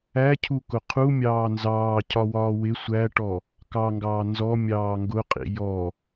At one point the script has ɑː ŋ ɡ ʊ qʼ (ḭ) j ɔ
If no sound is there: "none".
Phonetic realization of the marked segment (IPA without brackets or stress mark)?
ḭ